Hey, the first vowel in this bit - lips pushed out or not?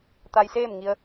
no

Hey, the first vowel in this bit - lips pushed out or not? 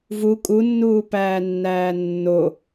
yes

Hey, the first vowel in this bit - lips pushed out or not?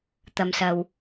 no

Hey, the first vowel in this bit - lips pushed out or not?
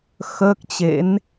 no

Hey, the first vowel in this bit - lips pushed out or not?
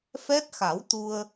no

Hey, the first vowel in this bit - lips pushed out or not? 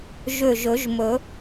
yes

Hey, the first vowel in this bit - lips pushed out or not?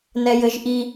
no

